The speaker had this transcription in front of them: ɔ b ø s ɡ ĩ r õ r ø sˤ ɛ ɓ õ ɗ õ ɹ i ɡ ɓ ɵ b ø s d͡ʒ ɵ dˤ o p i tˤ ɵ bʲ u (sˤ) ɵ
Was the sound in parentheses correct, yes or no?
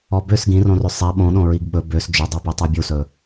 no